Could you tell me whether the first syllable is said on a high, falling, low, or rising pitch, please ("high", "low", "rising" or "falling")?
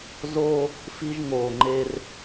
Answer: high